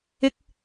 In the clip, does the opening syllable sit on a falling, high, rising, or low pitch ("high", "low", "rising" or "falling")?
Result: high